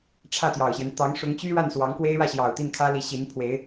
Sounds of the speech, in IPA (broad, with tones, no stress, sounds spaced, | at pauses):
ʈ͡ʂʰ ä˥˩ t̪ j ɑ˨˩ ʊ̯ ɕ j ɛ˦ n t̪ ɑ˧˥ ŋ ʂ ʊ˧˥ ŋ t͡ɕ y˥ ɻ a˥˩ n s w ɑ˧˥ ŋ k w e˥ ɪ̯ ɻ ä˥˩ ɕ j ɑ˨˩ ʊ̯ t̪ i˥˩ n kʰ ä˥ l i˧˥ ɕ i˧˥ n pʰ w e˧˥ ɪ̯